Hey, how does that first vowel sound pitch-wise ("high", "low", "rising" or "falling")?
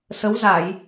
rising